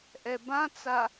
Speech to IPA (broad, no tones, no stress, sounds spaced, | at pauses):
ʔ ɛ b ã t͡s a